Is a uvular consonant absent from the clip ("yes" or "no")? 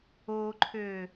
yes